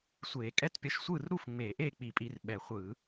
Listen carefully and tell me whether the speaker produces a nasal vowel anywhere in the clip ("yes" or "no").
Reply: no